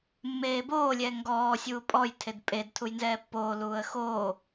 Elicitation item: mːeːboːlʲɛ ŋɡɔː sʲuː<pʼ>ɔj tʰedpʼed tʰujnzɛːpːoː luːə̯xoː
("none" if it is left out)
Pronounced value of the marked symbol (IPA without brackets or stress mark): pʼ